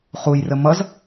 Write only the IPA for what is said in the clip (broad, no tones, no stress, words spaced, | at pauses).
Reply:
χujrə mʌz